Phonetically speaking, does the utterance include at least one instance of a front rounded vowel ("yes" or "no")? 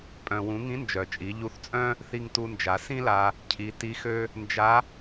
yes